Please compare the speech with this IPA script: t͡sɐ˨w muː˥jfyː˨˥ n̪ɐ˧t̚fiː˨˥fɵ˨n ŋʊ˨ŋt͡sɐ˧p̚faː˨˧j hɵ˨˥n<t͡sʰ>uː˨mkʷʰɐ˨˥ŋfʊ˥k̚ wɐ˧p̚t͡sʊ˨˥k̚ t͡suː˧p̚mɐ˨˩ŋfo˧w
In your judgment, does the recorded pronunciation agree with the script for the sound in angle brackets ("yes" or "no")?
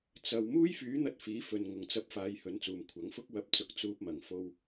no